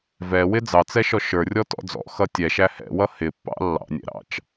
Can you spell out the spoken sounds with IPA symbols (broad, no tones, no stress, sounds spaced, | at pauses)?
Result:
v ɛ w ɪ d͡z ɑ t͡s ɛ ʃ ɔ ʃ ə˞ rʲ ɔ t ɔ̰ d͡z ɔ̰ x ʌ tʲ ɛ ʃ æ h ɛ̰ w ʌ h ɪ pː ɑ̰ lː ɑ̰ nʲ ɛ̰ ɾ ɑ̰ t͡ʃ